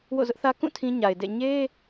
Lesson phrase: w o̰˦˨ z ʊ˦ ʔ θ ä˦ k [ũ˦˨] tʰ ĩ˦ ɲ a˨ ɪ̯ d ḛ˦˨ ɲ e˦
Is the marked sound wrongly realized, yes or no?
no